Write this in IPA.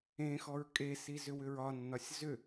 ẽ x ɔ ɹ kʼ e s i z ʏ w ʏ ɹ ɒ nː ɒ sʲ z ʏ

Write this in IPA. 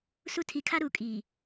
s u˦ tʰ i˨ kʰ a˦ ɾ u˨ kʼ iː˨

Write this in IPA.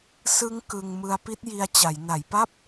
s ɯ˦˥ ŋ k ɯ˧ ŋ m ɯ˧ a̯ p i˦˥ t̚ j i˧ a̯ t͡ɕ a˩˦ j n a˩˦ j p a˥˩ p̚

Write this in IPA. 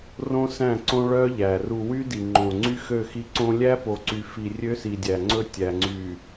r õ˦ s æ̃˦˨ ǀ õ˦ ɭ œ˦ ʎ æ˨ r u˨ w y˦ d i˨ ŋ͡ǃ õ˨ ŋ͡ǀ y˦ x ø˦˨ x i˦ ǀ õ˦ lʲ æ˦ p o˨ ǀ y˨ f i˨ rʲ ø˦ s i˨ dʲ æ˨ ŋ͡ǀ ɵ˦ tʲ æ˨ ŋ͡ǀ y˨

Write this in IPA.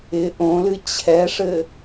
ɪ ʔ õ l ɨ t͡ɕʰ ɛ ʂ ɘ

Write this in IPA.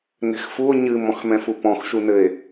n ɛ̤ x f u o̯ ɲ ɨ m ɔ̃ x m ɛ̃ f u p ɔ̃ x ʃ u n ɘ e̯

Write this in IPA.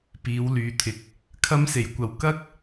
p iː˨˧ w l yː˨ t̪ʰ ɪ˨ k̚ | kʰ ɐ˧ m s e˨˩ j kʷ ɐ˨ w k ɐ˥ k̚

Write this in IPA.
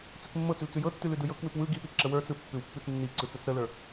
t͡s ʉ k mː ɤ t͡s ʉ l t͡s ʉ j ɤ tː ʉ l ʉ d ɯ j ɤ k w ʉ p w ɯ ɡ i p i ǁ ə w ə˞ t͡s ɯ pː ʉ w pː ʉ t͡s nː i ǀ ɯ t͡s ə˞ t͡s ɾ ə l ə˞

